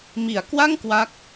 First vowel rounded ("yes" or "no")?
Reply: no